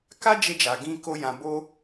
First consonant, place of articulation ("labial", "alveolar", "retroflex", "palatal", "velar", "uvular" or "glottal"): velar